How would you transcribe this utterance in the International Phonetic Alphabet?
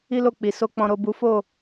i˦ l o˦˨ k͡p i˨ s o˧ k͡p ɔ̃˨ ɾ o˨ b u˨˦ f o˦˨

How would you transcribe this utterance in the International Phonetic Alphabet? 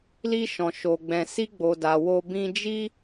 l i˧ ʃ ɔ̃˨ ʃ o˨ ɡ͡b ɛ̃˨ s i˧ ɡ͡b o˨ d a˨ w o˧ b ĩ˧ d͡ʒ i˦

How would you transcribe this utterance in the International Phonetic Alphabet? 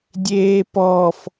dʲ eː p ɔ f

